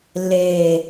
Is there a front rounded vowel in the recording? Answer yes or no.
no